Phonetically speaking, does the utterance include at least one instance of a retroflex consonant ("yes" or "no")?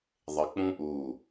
no